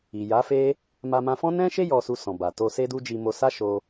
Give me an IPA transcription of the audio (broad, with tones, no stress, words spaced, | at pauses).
i˨ja˨˦fe˦ | ma˧mã˧fɔ̃˦ nɛ̃˦ʃe˦ jɔ˧su˧sɔ̃˨ba˨ to˧se˦du˦d͡ʒi˧ mo˧sa˦ʃo˧